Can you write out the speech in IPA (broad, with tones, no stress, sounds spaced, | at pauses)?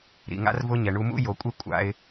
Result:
ɾ ḭ˧ ŋ a̰˦ r v ʊ˦ ɲ ɛ˧ ɳ u˦ m ṵ˦ j o˧ kʷʼ e˦ kʷʼ a̰˦ ɪ̯